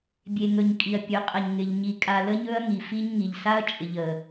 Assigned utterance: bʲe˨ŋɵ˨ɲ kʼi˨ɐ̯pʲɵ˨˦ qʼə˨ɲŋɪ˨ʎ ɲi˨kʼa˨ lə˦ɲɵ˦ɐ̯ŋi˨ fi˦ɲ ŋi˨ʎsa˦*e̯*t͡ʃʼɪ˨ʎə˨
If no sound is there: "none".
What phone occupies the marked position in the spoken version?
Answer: ɐ̯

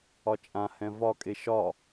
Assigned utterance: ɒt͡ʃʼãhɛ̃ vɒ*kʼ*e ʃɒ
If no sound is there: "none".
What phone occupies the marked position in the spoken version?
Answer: kʼ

